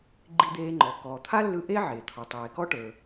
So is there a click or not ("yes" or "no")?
yes